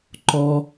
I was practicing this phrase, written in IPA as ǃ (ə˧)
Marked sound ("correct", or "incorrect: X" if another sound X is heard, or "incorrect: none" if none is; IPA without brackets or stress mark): incorrect: ɔ˧